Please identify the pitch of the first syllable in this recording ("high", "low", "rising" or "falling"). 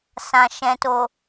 low